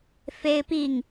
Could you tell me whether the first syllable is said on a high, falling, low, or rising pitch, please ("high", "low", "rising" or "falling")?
high